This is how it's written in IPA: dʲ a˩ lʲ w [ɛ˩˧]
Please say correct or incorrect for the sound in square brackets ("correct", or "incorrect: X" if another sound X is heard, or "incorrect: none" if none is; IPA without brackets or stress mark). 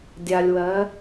incorrect: ɜ˩˧